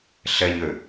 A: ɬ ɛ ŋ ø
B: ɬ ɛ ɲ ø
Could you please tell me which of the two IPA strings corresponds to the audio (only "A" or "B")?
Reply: B